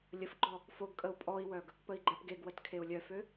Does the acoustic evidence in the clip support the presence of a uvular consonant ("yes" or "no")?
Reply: no